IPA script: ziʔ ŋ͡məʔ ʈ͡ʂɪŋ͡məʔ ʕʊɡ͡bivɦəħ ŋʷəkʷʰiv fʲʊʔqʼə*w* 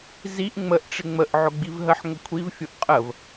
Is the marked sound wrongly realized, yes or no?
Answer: yes